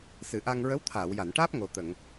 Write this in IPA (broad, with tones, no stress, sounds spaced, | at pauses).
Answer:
s ɨ˨˩˨ ʔ a˧ ŋ ɹ ə˧˥ w t̪ʰ aː˨˩˨ w j a˨˩˨ n ʈ aː˦˥ p̚ ŋ o˨˩ t̪ ə˨˩˨ ŋ